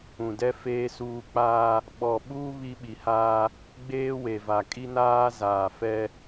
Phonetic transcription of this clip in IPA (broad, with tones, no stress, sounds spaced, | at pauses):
ũ˨ d ɛ˦ f eː˦ s uː˦ k͡p aː˦ | ɓ ɔ˨ ɓ uː˦ β i˦ ɓ i˨ h aː˦ | ɡ͡b eː˦ w e˨ v a˨ kʼ i˦ n aː˦ z aː˨ f ɛ˦